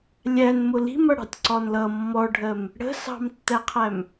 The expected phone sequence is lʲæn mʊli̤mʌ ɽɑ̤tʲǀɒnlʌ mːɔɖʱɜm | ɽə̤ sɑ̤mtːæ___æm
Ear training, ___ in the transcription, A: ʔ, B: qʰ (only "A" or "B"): B